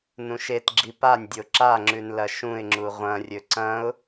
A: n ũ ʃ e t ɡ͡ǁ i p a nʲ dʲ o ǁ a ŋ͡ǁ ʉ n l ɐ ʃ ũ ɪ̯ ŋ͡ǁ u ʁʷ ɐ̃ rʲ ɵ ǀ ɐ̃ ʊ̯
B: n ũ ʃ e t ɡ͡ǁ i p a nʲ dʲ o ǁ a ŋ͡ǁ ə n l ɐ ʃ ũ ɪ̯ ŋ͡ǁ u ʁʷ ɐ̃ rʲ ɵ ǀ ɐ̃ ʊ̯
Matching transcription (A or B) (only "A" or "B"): A